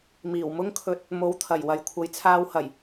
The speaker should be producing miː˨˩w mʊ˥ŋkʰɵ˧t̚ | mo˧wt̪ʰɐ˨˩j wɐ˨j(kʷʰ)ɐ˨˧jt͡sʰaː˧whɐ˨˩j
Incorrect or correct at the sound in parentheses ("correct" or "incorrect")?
correct